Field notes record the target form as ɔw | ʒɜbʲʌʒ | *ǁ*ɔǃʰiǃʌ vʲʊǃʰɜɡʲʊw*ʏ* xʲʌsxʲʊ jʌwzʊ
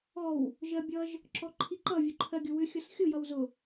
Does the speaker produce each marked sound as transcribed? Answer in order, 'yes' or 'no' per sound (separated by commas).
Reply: yes, yes